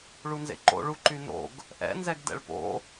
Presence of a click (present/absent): present